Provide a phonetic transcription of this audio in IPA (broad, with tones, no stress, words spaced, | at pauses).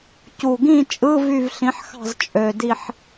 cu˨˩ɡĩ˥˨t͡ʃʼɯ˧˥˧ vy˥˨vɬĩ˨˥ħxɑ̤˥˨z t͡ʃʼø˨˩di˥˨ħ